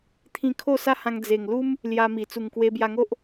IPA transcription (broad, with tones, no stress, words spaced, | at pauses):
t̪ʰĩ˧kʰo˥˧sa˦hã˧ŋ d͡ze˨˩ŋlu˦m | lja˧mi˨˩ t͡su˨˩ŋkwe˧bja˧ŋo˦ʔ